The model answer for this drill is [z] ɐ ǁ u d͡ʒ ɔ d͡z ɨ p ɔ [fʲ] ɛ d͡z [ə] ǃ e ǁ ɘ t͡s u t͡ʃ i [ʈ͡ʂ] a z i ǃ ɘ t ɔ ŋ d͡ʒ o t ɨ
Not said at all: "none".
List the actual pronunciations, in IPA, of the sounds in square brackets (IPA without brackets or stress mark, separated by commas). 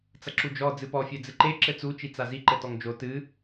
t͡s, fʲ, ɨ, t͡s